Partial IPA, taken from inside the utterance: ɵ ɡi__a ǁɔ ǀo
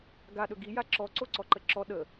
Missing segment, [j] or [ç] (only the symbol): j